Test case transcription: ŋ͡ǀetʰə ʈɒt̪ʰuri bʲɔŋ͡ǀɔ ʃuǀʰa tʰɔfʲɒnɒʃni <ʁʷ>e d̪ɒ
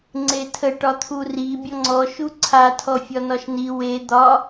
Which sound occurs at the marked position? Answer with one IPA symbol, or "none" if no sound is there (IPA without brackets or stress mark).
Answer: w